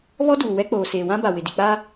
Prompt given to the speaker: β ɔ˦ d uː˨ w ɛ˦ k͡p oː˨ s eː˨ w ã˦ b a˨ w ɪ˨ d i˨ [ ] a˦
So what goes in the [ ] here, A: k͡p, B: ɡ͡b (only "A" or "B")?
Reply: A